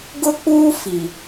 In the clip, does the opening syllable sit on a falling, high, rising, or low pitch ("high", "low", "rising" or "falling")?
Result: high